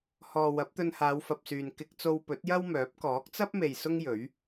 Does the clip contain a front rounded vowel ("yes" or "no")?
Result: yes